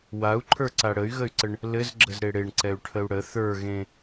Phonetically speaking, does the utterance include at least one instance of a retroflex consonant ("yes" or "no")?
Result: yes